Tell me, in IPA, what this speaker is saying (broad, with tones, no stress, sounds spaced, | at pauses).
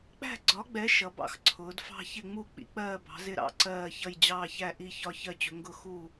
k͡p æ̤˥˧ ɡ͡ǀ ɒ˨˥ ɡ͡b ɛ˨˥ ʃ ʌ˨˥ b ɑ̰˥˧ x ǀʰ ʊː˨˥ d f ɑ̤˥˧ ç ɪ˥˧ ŋ͡m u˥˧ k͡p ḭ˨˥ k͡p ɜː˥˧ b ɑ̤˨˥ z ɪ˥˧ ɾ ɑ̰˥˧ ǀ ɜː˥˧ ç ʌ˥˧ j d͡ʑ ɑː˥˧ ç æ˥˧ ʔ i˥˧ ç ɒ˥˧ ç ɜ˥˧ t͡ɕ ʊ˨˥ ŋ ɡ ʊ˥˧ x u˥˧